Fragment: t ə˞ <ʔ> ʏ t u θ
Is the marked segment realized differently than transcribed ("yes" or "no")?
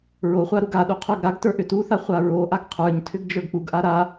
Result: no